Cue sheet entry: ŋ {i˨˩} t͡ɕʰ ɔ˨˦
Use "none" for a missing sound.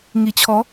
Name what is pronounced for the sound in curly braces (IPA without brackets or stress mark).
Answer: i˨˩